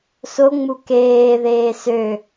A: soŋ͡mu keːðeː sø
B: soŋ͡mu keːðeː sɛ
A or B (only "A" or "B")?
A